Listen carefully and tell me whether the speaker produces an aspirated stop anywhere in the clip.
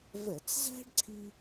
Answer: yes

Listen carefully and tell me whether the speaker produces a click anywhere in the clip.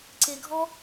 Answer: yes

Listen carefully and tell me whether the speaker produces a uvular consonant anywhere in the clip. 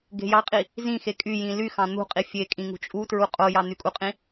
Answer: yes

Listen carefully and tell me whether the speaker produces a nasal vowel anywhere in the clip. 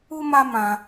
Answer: yes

